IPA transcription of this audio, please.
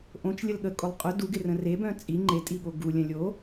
ʔ õ t͡ʃ lʲ ə l ɠ ə kʼ o lˠ qʼ ʊ d u ɡ ɪ r ə̃ r e b œ̃ t͡sʼ i ŋ͡ǃ e tʼ i ɠ o ɡ u lʲ œ̃ lʲ o

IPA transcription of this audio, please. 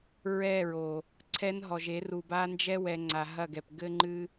ɹ ɛ˦˨ ɹ o˨ | ǀʰ ɛ˦ n ɦ ɔ˨ ʒ e˨˦ r u˨ b a˦ n d͡ʒ ɛ˦ w ɛ˨ ŋ͡ǀ a˨ ɦ ɐ˦˨ ɡ ɛ˨ p ɡ ɘ˦ ŋ͡ǃ ɨ˦

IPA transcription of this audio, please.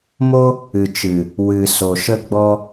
m o˦ | ɨ˨ t͡ʃ ɨ˨ | w ɨ˨ s o˨ ʃ ə˦ ɡ͡b ɔ˦

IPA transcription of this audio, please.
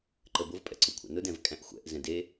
ǃ ə b ʊ v pʼ ɛ̰ ǀ ʊ kʷʰ a̰ n ʊ d ɛ̃ v kʼ æ̃ ʔ xʷ ɛ̰ ʔ z ɛ̃ d e

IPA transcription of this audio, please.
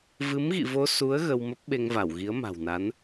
v ɨ˨˦ m ɣ ḭ˧˨ v o˧ s u˨˦ ə̯ ɣ ə˧ w m ə˦˥ p̚ ɓ e˧ ŋ v a˧˩ w ɣ i˨˦ ə̯ m a̤˨˩ w n a˨˦ n

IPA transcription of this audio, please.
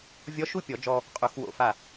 vʲ ɔ˧˥ ʃ u˥˨ pʲ ɔ˨˩˦ d͡ʒ ɔ˧ | qʼ u˨˩˦ x w o̰˧˩ f a˧˩

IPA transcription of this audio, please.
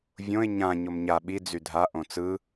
vʲ õ ɪ̯ ɲ ã ɲ o m ɲ a ɓ i d͡z y dʱ a ʔ õ t͡s ɯ

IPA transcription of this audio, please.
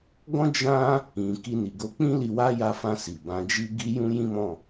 ɡ ɔ̃˦ d͡ʒ ã˦ | ĩ˨ k i˧ n i˨ ɡ o˧ k͡p ĩ˦ l i˧ w a˦ j a˧ f ã˧ s i˨ b ã˨˦ d͡ʒ i˦ ɡ i˦ j ũ˦ j ĩ˦ m ɔ̃˦˨

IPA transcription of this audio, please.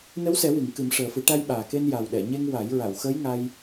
n ə˧˥ w s ɛ˨˩˦ w i˨˩˨ ŋ k ɨ˨˩˦ m ʂ əː˨˩ f ɨ˨˩˦ ʈ a˧ j ɓ aː˨˩ k e˧ n j a˨˩ w ɗ ɛ˨˩˨ ɲ e˧ ŋ w a˨˩˦ j ɹ a˨˩˨ w x əː˧˥ j ŋ a˧ j

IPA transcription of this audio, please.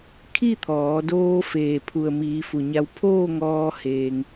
kʰ i˥˨ t̪ʰ ɔː˩˧ d oː˧ f eː˩ pʰ u˩ ə̯ m iː˩˧ f u˧˩ ɲ a˧˥ w pʰ oː˥˨ ŋ ɔː˧ h eː˧ ŋ

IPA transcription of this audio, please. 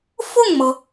f ʊ˥˩ ŋ m ɤ˩

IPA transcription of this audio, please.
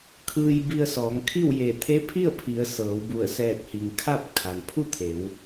kʰ ɯː˧ j b i˧ ə̯ s ɔː˩˧ ŋ kʰ i˥˨ w j e˧˩ t̪ʰ e˧˥ pʰ i˥˨ ə̯ pʰ i˩˧ ə̯ s ɤː˩˧ w b u˧˩ ə̯ s ɛː˧˩ t̚ h i˩ ŋ kʰ a˥˨ p̚ kʰ a˩ n pʰ u˥˨ t̪ʰ e˩˧ w

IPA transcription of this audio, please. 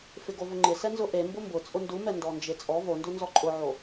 f ɪ ɡ o v ʊ ŋ͡ǃ ɪ s ɛ n z ʊ ʔ e m b ʊ m b ʊ t͡sʼ ʊ n d u m ɛ n d ɔ n d͡ʒ e t͡sʼ ɔ v o n d u n z ɔ ǃʼ ʊ ʕ o

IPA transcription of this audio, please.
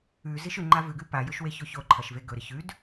ʉ z i ʃ ʉ ŋ͡ǃ a v ʉ ɡ ʉ p a j ɵ ʃ w e ç o ç o ǃʰ ɐ ʃ v e ɡ ɵ ɾ ɨ ç ʉ d

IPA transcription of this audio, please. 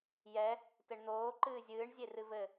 j ɛ | t ɘ ɳ n̪ oː ǃ ɨː zʲ ɨː ɳ zʲ e r ɨ v ɘ

